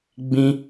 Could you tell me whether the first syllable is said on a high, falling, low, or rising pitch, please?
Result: high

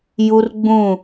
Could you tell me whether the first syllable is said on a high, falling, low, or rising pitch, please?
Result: high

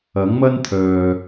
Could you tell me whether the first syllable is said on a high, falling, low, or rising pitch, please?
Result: rising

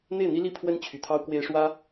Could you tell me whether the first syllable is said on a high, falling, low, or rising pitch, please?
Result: falling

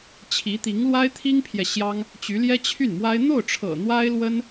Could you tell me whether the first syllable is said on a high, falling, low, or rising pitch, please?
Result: rising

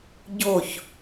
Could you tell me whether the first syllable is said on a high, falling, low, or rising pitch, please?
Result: falling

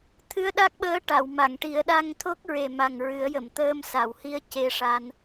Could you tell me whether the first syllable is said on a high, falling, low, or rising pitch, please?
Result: rising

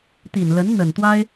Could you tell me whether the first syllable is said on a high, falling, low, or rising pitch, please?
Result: low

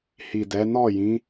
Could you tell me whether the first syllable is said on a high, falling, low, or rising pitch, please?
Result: low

